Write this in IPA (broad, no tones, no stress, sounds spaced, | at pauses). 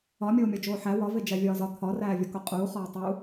ɒ mʲ oː mʲ ɒ d͡ʒ oː ħ æ w ɒ v e d͡ʒ æ vʲ ɒː z ɒ t̪ʰ ɒ r æː vʲ ɒ k o qʼ uː χ ɒː tˤ u